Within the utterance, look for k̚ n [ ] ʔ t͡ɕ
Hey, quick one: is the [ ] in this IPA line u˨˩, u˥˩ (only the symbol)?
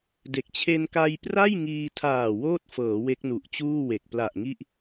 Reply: u˨˩